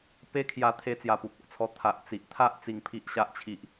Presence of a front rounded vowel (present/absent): absent